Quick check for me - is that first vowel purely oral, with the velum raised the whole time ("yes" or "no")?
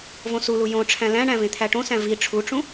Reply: no